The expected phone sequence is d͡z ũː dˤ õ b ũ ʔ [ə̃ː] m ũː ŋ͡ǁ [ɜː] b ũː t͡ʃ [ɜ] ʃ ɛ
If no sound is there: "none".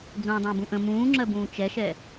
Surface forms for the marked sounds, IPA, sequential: ə̃, ɜ, ɛ

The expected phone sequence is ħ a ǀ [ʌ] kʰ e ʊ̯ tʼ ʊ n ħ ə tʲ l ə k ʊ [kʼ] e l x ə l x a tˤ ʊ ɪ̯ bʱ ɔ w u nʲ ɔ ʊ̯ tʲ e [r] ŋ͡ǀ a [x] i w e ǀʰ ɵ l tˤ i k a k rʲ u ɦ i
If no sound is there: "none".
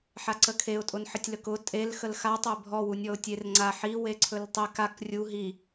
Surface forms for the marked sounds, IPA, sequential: ə, tʼ, r, ħ

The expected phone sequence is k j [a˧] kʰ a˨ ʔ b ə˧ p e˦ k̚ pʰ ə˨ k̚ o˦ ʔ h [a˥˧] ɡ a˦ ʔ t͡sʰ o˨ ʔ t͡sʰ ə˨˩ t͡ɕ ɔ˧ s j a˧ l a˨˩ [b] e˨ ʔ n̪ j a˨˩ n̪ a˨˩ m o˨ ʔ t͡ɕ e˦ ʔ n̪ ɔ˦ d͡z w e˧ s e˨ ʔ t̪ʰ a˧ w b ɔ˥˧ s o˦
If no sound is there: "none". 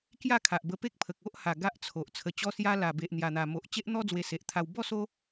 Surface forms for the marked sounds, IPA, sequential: a˥˧, a˨˩, b

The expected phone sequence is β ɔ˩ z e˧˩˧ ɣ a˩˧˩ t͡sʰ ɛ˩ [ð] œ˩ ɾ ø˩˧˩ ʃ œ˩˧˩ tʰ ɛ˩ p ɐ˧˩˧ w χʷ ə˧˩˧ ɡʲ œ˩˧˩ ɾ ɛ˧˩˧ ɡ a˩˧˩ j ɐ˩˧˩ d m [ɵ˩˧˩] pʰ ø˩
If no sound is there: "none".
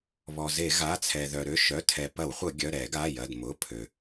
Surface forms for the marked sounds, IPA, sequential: ð, ʊ˩˧˩

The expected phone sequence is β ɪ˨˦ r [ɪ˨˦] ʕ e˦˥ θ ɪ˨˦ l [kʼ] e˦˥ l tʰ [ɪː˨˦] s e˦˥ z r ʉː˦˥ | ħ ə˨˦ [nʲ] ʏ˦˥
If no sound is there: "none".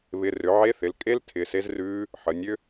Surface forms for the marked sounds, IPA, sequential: ʏ˨˦, kʼ, ɪː˨˦, nʲ

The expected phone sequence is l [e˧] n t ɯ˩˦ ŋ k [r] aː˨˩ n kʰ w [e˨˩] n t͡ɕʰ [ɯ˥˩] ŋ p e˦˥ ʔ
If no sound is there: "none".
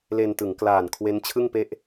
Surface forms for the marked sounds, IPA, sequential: e˧, l, e˦˥, ɯ˥˩

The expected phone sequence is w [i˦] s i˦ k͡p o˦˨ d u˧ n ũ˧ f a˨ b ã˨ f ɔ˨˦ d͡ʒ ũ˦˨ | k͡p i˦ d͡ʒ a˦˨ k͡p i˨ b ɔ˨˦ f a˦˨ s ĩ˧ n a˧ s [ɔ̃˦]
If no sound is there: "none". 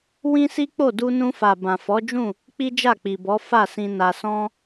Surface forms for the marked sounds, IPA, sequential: ĩ˦, ɔ̃˦

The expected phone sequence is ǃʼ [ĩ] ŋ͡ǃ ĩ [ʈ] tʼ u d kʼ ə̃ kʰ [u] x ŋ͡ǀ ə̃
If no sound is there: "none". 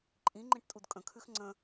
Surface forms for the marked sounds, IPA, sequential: ĩ, ʈ, ʉ

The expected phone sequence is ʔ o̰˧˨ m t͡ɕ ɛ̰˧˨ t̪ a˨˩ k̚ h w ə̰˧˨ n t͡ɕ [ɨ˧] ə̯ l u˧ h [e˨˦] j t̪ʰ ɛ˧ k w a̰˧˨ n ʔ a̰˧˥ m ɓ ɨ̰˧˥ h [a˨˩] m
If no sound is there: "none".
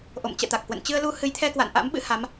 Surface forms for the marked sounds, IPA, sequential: ɨ˧, ɨ˨˦, a˨˦

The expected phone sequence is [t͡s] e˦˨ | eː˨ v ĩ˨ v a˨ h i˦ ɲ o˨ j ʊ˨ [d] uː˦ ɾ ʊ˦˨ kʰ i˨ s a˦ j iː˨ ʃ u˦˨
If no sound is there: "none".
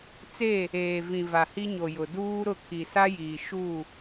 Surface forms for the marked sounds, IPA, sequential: t͡s, d

